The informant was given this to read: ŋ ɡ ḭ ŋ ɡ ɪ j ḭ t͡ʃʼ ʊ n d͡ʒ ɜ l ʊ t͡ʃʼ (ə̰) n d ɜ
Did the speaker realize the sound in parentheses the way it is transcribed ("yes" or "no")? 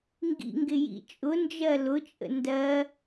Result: yes